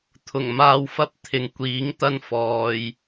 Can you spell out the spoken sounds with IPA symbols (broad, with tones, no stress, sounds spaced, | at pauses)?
t̪ʰ ʊ˨˩ ŋ m aː˧ w f ɐ˥ p̚ t̪ʰ ɪ˨ ŋ kʷ iː˨˥ ŋ t̪ ɐ˥ n f ɔː˨ j